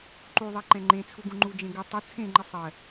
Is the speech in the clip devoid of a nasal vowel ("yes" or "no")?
no